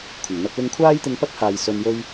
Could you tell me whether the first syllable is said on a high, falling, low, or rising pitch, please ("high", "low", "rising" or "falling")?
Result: low